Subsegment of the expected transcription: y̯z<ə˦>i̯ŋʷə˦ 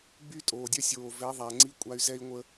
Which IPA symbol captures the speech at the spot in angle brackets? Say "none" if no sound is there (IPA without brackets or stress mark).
ɛ˦